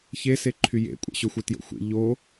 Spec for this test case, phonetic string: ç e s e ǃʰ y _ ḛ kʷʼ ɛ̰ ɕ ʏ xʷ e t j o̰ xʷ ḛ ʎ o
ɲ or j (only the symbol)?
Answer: j